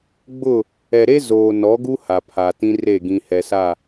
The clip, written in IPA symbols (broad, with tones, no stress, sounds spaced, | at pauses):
ɡ͡b ʊ˦˨ | ɛ˨ ɾ e˦ z oː˨ n ɔ˨˦ ɡ u˦ h a˨ pʰ a˨ t ĩ˦ r e˦˨ ɡ ĩ˨ h ɛ˨ s a˦˨